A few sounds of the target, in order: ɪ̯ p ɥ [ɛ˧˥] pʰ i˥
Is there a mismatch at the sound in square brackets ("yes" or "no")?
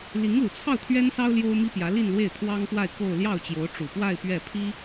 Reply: yes